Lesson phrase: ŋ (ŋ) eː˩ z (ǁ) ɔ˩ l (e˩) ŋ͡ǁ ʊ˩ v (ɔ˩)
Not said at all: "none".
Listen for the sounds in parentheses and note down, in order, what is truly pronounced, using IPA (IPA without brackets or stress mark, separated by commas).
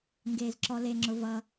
ɡ, ǁ, e˩, ʌ˩